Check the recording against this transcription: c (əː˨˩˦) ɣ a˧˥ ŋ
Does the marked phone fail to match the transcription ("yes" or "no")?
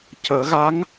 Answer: no